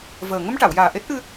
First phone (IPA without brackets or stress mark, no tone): v